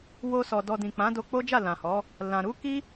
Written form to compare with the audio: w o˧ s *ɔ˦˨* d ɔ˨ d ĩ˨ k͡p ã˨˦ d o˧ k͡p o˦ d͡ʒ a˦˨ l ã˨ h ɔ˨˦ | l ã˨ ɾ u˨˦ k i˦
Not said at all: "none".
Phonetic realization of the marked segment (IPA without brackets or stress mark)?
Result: ɔ˨